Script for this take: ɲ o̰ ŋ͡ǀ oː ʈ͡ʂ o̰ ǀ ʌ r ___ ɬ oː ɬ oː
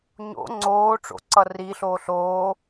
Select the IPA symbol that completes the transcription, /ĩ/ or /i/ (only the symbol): i